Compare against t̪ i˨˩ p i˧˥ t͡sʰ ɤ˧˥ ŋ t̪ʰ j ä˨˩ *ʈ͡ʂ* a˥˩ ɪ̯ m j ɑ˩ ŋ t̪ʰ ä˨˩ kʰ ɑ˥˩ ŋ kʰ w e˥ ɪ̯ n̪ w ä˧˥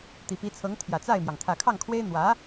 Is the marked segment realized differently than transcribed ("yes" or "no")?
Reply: yes